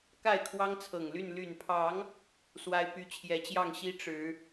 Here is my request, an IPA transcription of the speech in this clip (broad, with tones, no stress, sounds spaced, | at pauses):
k a˥˨ ɪ̯ kʰ w ɑ˦ ŋ t͡sʰ ɤ˨˩ ŋ l y˥˨ n l y˨˩ n pʰ ɑ˨˦ ŋ | s w a˦ ɪ̯ p y˦ t͡ɕʰ j ɛ˨˦ t͡ɕ j ɑ˥˨ ŋ ɕ i˦ ʈ͡ʂ ɻ̩˨˦